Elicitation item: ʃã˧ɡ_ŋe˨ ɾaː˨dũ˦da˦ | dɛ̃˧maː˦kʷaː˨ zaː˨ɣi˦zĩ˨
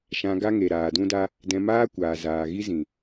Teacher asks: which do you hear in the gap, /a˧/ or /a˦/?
a˦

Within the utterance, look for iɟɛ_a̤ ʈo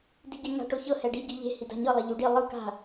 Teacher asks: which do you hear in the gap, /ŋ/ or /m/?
ŋ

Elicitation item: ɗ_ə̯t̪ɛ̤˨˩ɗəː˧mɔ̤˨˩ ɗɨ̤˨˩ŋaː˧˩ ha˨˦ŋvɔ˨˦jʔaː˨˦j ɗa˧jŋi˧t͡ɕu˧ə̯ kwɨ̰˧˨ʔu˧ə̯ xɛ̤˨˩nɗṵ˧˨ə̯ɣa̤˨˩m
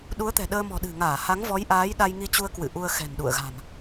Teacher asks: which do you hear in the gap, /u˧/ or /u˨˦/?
u˨˦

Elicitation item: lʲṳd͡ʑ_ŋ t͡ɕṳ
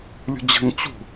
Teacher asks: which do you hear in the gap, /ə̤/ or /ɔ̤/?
ə̤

